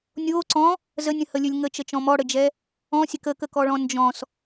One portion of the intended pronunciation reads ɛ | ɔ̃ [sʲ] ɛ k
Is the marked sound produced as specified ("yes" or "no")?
yes